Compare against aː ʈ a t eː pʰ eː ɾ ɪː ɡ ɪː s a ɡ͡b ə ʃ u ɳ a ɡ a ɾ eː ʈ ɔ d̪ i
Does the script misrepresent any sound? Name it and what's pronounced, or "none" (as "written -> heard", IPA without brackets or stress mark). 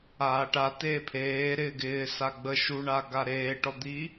none